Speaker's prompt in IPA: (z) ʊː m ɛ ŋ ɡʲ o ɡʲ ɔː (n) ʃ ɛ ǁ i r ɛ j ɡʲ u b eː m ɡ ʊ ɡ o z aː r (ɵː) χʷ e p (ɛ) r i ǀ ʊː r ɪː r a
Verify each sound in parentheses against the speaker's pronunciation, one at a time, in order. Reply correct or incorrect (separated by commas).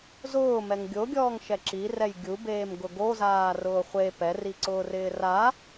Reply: correct, incorrect, incorrect, correct